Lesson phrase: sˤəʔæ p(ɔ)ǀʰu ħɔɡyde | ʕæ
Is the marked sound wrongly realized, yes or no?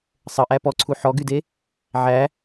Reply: no